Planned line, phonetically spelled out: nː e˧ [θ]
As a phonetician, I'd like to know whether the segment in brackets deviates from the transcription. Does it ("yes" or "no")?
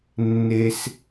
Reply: yes